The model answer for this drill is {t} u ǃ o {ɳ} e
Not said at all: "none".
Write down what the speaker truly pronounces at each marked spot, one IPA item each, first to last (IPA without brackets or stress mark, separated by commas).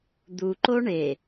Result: d̪, ɳ